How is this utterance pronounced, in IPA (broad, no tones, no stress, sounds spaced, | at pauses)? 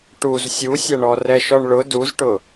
ʈ u z sʲ u sʲ ɐ ɳ ɔ r ɛ ʃ ɔ ɳ ɭ ʊ d u z ʈ ʊ